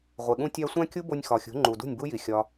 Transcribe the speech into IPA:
ʁʷe˨ɠũ˧tʲæ˧ sʷæ̃˦kʲu˦bo˧nʲ xɒ˨xʲṳ˨˦ ŋ͡ǃu˨dṳ˦˨nʲbu˦ji˨ xʲɒ˦

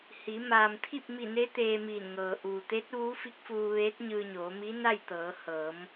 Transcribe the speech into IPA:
hi˩˧ maː˩mt̪ʰi˥˨p̚mi˧˩ne˧˥ t̪eː˧miː˧˩nŋɤː˩ ʔuː˩t̪e˧˥t̚ ʋuː˧˥fi˧˥k̚fuː˧ ʋeː˧˥t̚ɲɯː˧ɲoː˩˧mi˧˥ na˥˨jt̪ɤː˩˧ hɤː˩˧m

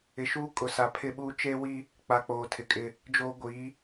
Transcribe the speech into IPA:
ɪ˨ʃuː˦ kʼʊ˨sa˨pʰɪ˦ɓuː˦ t͡ʃe˦wi˦ | k͡pa˨k͡poː˨tʰɪ˨kʼɪ˦ | d͡ʒoː˦ ɡʷi˨˦

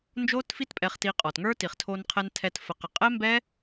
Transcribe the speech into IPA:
nd͡ʒo˦tfi˦tpʼɛ˧χ ti˧qʼɔ˨tŋə˞˦ ti˨χtʰo˧nqʰɛ˧n tʰɛ˧t fə˨qə˨qʼɛ˦mbɛ˦

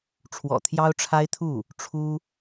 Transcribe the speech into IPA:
ʈ͡ʂʰwɔ̰˨˩t̪ʰjɑ˥ʊ̯ʈ͡ʂʰa˥ɪ̯t̪ʰu˥˩ | ʈ͡ʂʰu˥

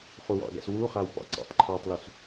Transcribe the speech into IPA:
χuwɑ̰ɡa̰s wuχaw pɑ̰ǀa̰tˤǃʰɑtˤlus

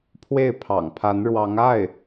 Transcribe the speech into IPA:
pʰwe˥˩ɪ̯pʰɑ̰˨˩ŋpʰa˧˥nɻwɑ˧˥ŋ a˥˩ɪ̯

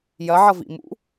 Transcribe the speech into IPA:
jɐʕʌvḭ mṵ

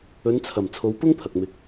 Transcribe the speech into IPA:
ɵ˨˧nt͡sʰɐ˨˩m t͡sʰo˨˧w pʊ˥ŋt̪ʰɐ˨k̚ mɪ˧k̚

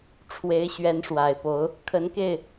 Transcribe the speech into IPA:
ʈ͡ʂʰwe˧˥ɪ̯ɕɥɛ˧˥n ʂwa˨˩ɪ̯po˧˥ʊ̯ | kʰə˧˥nke˥˩ɪ̯

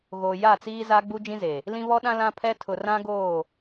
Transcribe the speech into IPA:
ɣoː˨ja˦˨t͡siː˦ za˦ɡ͡bu˦d͡ʒĩ˦ze˨ | lĩ˦βɔ˦ɗã˦ lã˦pʰɛ˦ tʰʊ˨rã˦ɡoː˦˨

